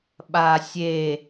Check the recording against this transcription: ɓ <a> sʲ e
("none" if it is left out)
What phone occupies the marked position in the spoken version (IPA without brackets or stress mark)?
a